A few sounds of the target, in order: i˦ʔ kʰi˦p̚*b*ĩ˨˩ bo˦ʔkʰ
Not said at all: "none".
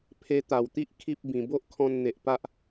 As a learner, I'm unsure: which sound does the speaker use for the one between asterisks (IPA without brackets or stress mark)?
b